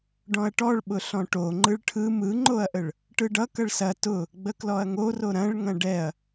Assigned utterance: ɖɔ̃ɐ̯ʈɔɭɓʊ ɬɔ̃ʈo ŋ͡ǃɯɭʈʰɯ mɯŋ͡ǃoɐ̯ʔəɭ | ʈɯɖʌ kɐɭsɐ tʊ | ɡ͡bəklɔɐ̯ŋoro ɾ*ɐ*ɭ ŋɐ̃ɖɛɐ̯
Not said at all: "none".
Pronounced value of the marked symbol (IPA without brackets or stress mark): ɐ̃